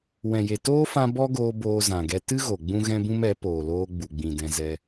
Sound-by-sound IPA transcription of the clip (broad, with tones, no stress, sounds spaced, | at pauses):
w ɛ̃˨ j e˨ t oː˦ f ã˧ b ɔ˦ ɡ oː˧ b oː˧ z ã˨ ɡ ɛ˧ t ɨ˦ ɣ o˨ ɡ͡b ũ˦ ɣ ɛ̃˦ b ũ˦ m ɛ˨˦ p oː˨ l oː˧ ɡ͡b u˨ ɡ͡b ĩ˨ d ɛ̃˧ z ɛ˧